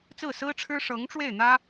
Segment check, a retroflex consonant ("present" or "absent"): present